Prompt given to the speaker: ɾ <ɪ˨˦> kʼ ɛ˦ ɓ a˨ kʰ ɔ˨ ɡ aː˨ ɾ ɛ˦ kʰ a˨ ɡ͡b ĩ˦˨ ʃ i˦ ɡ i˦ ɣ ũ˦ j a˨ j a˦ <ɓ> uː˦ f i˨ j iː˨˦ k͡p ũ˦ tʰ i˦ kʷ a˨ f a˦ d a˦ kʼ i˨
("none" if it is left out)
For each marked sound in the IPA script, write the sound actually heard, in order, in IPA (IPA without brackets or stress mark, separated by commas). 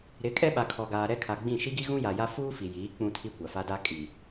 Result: ɪ˨˦, f